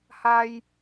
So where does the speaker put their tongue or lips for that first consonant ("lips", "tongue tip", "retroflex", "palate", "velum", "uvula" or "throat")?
throat